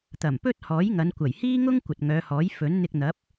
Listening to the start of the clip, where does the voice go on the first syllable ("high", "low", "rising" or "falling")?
low